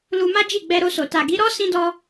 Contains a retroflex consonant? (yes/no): no